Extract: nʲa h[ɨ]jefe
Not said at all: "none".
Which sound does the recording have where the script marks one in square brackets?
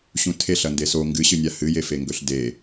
ɨ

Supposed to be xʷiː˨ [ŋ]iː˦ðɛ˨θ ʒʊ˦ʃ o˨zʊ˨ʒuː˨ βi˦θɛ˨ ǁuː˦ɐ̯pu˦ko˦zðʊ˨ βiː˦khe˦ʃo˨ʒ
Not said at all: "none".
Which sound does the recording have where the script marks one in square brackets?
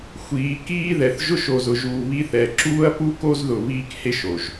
k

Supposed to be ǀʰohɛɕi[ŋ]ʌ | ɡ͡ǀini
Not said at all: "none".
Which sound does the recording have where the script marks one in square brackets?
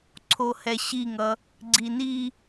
ŋ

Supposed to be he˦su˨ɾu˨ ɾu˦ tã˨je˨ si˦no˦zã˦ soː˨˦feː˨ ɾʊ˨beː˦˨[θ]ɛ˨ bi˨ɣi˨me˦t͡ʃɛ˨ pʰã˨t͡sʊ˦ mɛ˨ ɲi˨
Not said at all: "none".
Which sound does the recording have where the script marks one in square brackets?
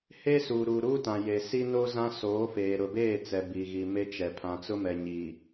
t͡s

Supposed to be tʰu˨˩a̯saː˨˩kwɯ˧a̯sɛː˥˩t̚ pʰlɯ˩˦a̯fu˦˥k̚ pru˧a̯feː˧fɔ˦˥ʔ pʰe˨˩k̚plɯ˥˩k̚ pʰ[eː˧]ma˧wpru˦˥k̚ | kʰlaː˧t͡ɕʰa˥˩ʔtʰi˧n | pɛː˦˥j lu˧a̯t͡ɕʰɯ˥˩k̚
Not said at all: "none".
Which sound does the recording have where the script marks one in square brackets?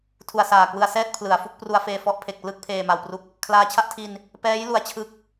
eː˧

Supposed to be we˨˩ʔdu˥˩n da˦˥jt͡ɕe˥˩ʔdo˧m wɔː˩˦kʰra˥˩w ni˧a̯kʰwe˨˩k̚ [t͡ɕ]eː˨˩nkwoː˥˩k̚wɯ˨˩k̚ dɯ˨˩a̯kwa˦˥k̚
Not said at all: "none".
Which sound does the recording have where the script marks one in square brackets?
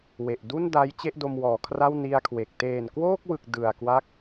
t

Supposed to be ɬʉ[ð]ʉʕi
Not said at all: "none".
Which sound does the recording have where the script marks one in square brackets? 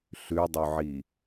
dˤ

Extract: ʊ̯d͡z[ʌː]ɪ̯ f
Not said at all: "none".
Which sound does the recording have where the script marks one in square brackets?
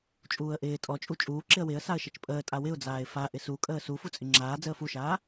aː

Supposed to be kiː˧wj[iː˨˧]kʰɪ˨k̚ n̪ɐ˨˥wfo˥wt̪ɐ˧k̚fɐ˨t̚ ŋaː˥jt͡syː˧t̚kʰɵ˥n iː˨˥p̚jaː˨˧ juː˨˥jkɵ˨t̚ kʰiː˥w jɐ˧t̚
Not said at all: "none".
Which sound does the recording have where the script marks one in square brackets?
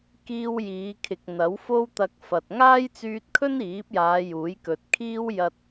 iː˨˧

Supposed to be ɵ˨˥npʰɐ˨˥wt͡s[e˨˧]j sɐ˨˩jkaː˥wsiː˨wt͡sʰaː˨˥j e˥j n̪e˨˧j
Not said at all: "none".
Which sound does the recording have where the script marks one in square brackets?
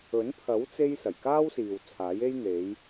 e˧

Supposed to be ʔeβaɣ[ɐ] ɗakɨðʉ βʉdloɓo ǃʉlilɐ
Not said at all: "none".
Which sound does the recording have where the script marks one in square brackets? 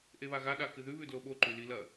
a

